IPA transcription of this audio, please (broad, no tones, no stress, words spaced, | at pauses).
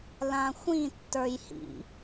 lãxʷĩ tːə˞jhḭ